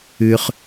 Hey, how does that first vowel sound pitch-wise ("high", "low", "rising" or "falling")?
high